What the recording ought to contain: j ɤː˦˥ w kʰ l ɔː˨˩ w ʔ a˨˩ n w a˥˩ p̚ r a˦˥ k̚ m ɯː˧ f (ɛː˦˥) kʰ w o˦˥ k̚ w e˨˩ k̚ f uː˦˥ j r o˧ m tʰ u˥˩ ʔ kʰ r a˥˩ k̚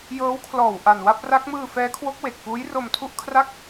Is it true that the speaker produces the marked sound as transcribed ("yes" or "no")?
yes